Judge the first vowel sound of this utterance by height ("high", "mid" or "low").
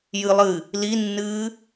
high